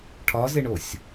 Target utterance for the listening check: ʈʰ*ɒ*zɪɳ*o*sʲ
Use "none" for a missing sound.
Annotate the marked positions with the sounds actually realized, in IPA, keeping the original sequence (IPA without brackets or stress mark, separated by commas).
ɒ, o